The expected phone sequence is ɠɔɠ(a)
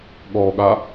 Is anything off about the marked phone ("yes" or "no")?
no